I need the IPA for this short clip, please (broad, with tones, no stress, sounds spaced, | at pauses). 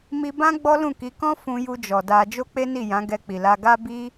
m i˧ b ã˦ ɡ͡b ɔ˦ l ũ˦˨ k i˨˦ k ɔ̃˦ f ũ˧ j u˧ d͡ʒ ɔ˨ d a˧ d͡ʒ o˦ k͡p e˦ n i˦˨ j ã˨˦ ɡ ɛ˧ k͡p i˨ l a˧ ɡ a˦ b i˦